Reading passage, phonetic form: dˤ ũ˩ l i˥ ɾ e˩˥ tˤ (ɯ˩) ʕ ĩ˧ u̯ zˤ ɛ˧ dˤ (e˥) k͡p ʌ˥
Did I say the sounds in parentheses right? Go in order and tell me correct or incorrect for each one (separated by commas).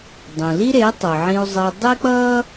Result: correct, correct